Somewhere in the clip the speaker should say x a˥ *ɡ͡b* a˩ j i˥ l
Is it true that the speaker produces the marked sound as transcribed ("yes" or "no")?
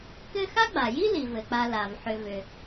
yes